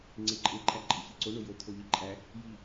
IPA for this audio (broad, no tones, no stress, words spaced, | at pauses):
ŋ͡ǀeǃʼeǃʼæ ǃʼeçiǀo ɳojot̪ʰoʎi ǃʼæ | ji